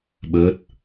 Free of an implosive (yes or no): no